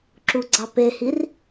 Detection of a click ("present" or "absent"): present